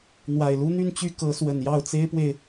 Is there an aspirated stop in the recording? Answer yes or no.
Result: no